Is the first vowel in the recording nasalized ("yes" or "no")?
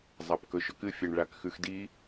no